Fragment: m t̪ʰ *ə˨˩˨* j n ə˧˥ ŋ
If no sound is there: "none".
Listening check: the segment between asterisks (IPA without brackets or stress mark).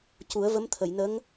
ə˨˩˨